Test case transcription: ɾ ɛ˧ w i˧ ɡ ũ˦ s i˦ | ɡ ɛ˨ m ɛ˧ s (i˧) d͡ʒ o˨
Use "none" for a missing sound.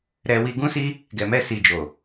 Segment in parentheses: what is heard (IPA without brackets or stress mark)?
i˨